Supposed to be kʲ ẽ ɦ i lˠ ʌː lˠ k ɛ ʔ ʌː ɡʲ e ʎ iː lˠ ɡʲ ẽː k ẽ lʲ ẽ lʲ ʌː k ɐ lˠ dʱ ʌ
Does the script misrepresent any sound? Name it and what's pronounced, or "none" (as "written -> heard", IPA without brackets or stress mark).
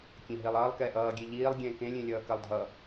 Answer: none